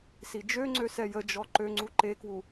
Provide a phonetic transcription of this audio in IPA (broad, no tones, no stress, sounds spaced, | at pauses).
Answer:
s i d͡ʒ ø ŋ͡ǀ ø s ɛ j ə d͡ʒ ɔ ǃ ø ŋ͡ǀ u ǃ e k w u